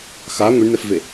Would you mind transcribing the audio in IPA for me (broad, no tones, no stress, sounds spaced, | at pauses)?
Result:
x a ŋʷ i ɳ n ɛ f v e